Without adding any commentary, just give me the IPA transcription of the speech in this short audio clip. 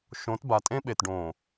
ʃ õ˨˦ t b a˨ tʼ ẽ˦ ɓ e˨ t ɖ õ˨

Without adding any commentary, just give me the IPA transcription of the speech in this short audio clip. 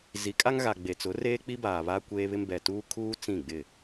z i˨˦ kʼ a˦ ŋ ɣ a˨ ɡ͡b e˨ t͡s ʊ˨˦ r eː˦ k͡p i˦ b aː˨ β a˦ kʷ eː˦ β ɪ˦ m b ɛ˨ t uː˦ kʰ uː˦ t͡s ĩ˦˨ ɡ͡b ɪ˦˨

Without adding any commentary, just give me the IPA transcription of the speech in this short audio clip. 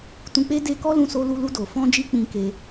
t ũ˧ k͡p e˦ d e˧ k ɔ˦ l ũ˧ s o˧ l u˧ l u˧ d o˨ f ɔ̃˧ d͡ʒ i˧ k͡p ĩ˧ k e˧

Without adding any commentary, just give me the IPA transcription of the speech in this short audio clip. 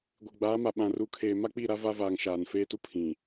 ɡʷ e˨ ɡ͡b aː˨˦ m a˨ ɓ ã˨ r u˨ kʰ eː˨ m a˦ k͡p i˦˨ ɾ a˦ v a˦ v aː˨ ŋ ʃ aː˨ n f eː˦ t u˦ pʰ ĩ˨

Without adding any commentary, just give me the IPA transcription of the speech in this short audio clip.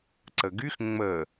ǀ ə ɡ y x ŋ͡m ə

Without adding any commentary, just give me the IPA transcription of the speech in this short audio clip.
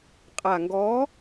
qʼ a˨˩ ŋ ɡ ɔ˨˥

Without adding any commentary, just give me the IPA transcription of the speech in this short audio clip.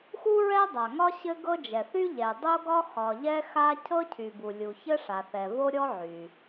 x u˥ ɹ ɛ˥ dˤ a˩ ŋ ɒ˥ ɕ ɘ˥ ɡ ɤ˥ d͡ʒ ɛ˩ θ y˥ ʎ ɛ˩ dˤ o˥ ɡ ɒ˥ x ɒ˩ ʎ ɛ˥ x a˥ cʰ ɤ˥ cʰ y˩ b u˩ lʲ u˩ ç ɘ˥ ʂ a˩ θ ɛ˩ v o˥ ɾʲ ɔ˥ ʕ y˩

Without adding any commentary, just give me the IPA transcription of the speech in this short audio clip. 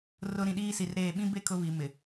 r ʊ˨ ɾ ĩ˨ ɗ iː˦ s i˨ r ɾ eː˦˨ ɓ ĩ˦ b e˦ kʰ ʊ˦ β i˨ m ɪ˨

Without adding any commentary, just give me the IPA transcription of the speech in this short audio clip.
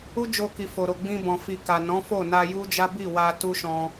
u˦ d͡ʒ o˧ k i˨ f o˨ ɾ o˨ ɡ͡b ĩ˧ b ɔ̃˨ f i˨ k a˨ n ɔ̃˨˦ f o˦˨ n a˧ j u˦ d͡ʒ a˦ b i˦˨ w a˧ t u˦ ʃ ɔ̃˧

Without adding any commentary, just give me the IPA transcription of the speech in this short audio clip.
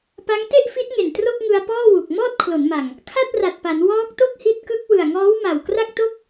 p a˦˥ ŋ t e˥˩ ʔ f i˦˥ t̚ ŋ e˨˩ n t r o˥˩ k̚ ŋ ɯ˧ a̯ p ɔː˥˩ w u˨˩ k̚ m ɔː˥˩ t̚ kʰ l o˩˦ n m a˨˩ ŋ | kʰ a˥˩ t̚ r a˨˩ t̚ p a˩˦ n w ɔː˦˥ k̚ t o˥˩ k̚ h i˦˥ t̚ k ɯ˦˥ k̚ w ɯ˨˩ a̯ ŋ ɔː˦˥ w m a˨˩ w k r a˥˩ k̚ t o˥˩ k̚

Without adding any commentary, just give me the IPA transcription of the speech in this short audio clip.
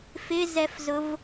f ɪ z ɛ f z ʊ v

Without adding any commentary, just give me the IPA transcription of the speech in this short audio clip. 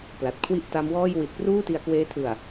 p l a˨˩ t̚ kʰ w i˥˩ ʔ t a˦˥ m w ɔː˥˩ j w i˨˩ t̚ p r uː˥˩ t i˧ a̯ k w eː˦˥ tʰ ɯ˨˩ a̯

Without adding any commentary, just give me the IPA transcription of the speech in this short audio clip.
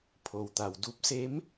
pʰ o˩ w t̪ a˩ w d u˧˥ p̚ s e˧˥ m

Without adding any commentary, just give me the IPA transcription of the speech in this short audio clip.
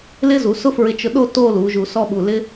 l ɪ˥ z u˩˧ s ʊ˥ f ɹ ɪ˧ t͡ʃ ʊ˧ ɗ o˥˧ t o˥˧ l u˩˧ ʒ u˧˩ s ɔ˥ ɓ u˧˩ l ɪ˥

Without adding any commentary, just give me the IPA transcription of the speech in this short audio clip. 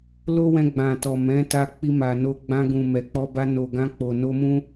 l o˦ w ɛ̃˧ ɡ͡b ã˨ t ɔ˨ m ɛ̃˨˦ t a˧ k͡p i˧ m a˨ n o˧ ɡ͡b ã˧ ɡ ũ˨ m ɛ˨ k͡p ɔ˧ b a˧ n o˨ ɡ ã˧ k͡p o˨ n o˧ m ũ˦

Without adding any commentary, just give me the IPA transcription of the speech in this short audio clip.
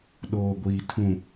ɗ oː˨ ɡʷ iː˨ tʰ ũ˨

